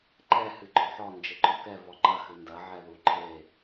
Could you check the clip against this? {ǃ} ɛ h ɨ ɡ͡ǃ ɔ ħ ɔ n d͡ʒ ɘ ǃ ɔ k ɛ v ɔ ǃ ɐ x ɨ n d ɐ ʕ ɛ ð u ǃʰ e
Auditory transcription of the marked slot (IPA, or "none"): ǃ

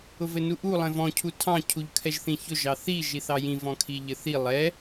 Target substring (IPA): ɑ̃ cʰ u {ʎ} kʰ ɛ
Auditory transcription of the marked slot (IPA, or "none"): ʎ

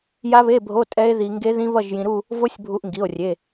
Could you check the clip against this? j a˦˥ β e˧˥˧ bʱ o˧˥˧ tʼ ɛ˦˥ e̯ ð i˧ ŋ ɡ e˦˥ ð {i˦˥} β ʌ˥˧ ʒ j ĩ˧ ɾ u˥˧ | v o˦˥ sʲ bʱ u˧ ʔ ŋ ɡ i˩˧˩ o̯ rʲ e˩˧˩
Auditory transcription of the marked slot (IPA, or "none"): ĩ˦˥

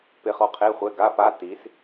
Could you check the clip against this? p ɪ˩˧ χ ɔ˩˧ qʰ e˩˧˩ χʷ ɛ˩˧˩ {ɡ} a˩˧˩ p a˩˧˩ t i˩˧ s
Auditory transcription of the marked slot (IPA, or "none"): ɡ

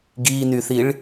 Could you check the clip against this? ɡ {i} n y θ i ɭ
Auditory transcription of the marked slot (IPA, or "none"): i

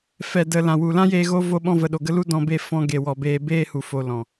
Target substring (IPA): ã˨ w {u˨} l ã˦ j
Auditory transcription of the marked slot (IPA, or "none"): u˨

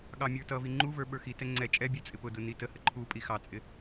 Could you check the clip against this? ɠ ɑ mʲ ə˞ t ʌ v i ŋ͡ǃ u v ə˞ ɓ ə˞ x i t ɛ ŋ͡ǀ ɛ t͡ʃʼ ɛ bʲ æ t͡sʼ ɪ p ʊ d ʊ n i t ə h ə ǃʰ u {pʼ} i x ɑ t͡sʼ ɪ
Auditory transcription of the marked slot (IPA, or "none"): pʼ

